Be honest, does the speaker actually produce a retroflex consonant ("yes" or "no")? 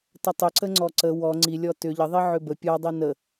no